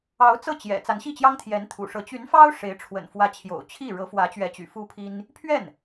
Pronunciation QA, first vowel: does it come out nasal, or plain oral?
oral